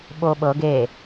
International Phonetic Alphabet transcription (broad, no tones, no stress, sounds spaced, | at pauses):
ɓ o ɓ ɤ ɡ e